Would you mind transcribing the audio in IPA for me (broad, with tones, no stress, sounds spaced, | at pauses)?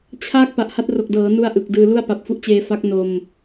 t͡ɕʰ a˥˩ k̚ p a˨˩ ʔ h a˦˥ t̚ r o˨˩ k̚ d ɤː˩˦ n u˧ a̯ ʔ ɯ˨˩ k̚ d ɯː˧ l u˥˩ a̯ p a˨˩ p̚ f u˦˥ ʔ t͡ɕ eː˧ f a˦˥ k̚ n o˧ m